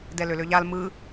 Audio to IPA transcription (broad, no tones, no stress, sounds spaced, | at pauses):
d ɛ l ø l ø ʎ a l m ɯ